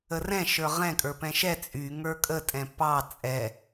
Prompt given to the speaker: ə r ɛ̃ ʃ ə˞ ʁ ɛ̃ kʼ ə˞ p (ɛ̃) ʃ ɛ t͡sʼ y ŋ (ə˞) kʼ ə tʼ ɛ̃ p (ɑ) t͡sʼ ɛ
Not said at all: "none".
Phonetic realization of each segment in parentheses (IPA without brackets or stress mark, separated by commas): ɛ̃, ə˞, ɑ